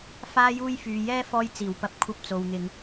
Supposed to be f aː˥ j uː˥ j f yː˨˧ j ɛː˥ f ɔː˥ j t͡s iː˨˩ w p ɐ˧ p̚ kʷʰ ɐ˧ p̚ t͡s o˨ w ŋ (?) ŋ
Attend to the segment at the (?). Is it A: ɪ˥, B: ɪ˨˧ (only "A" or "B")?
B